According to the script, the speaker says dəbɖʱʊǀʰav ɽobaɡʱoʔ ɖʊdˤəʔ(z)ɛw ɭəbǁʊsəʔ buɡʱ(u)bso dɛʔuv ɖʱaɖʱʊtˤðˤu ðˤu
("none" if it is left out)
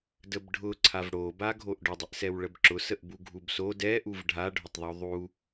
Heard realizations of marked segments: s, u

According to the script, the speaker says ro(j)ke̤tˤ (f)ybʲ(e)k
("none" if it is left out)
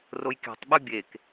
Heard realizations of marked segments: j, ɓ, e

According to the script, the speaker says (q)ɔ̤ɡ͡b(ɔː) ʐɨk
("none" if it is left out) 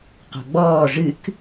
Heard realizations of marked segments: q, ɔː

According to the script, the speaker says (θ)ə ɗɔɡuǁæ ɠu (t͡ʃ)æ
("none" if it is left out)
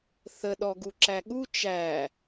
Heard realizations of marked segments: θ, t͡ʃ

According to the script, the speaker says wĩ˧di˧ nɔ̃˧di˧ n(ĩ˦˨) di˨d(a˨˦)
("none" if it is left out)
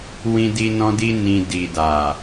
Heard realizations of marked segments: ĩ˨, a˨

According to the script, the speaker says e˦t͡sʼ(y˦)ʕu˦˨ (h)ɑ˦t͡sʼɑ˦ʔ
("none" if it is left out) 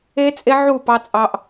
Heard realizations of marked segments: e˦, p

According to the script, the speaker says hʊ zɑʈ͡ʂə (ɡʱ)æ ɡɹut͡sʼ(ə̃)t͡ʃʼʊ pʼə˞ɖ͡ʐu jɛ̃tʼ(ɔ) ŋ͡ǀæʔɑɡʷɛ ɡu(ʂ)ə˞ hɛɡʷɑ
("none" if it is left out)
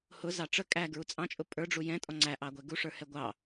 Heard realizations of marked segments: kʼ, ɑ̃, ɔ, ʂ

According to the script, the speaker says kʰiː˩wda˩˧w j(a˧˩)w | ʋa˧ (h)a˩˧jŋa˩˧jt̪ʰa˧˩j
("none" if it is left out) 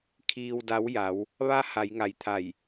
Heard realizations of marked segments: a˩˧, h

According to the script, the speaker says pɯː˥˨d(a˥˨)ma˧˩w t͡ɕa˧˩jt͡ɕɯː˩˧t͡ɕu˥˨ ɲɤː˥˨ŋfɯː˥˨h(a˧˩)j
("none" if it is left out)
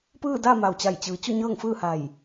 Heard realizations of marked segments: a˥˨, a˧˩

